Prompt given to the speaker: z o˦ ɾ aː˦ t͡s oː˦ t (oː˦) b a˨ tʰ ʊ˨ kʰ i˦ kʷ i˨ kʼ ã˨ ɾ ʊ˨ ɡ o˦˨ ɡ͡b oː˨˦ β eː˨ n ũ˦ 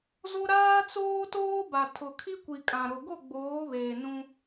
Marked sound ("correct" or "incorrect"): correct